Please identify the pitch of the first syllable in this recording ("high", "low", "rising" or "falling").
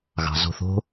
low